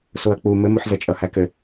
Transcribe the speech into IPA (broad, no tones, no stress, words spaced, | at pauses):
soɐ̯k͡pu mɘmuħzʌ t͡ʃʼʌhækɘ